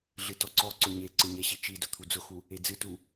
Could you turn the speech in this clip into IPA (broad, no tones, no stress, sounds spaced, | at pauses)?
ɮ ɨ t ɔ ǀ ɔ ǀ ʊ ɲ e ǀ ɨ ɲ ɛ ɕ i t͡ʃ i d ʊ t̪ʰ u d͡z ʊ x u | e d͡z ɨ t u